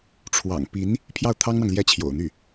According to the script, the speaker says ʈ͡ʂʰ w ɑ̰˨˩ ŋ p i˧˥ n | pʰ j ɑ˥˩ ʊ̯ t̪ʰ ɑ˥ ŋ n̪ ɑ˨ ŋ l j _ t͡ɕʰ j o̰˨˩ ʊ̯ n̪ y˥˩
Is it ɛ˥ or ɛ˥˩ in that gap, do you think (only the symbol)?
ɛ˥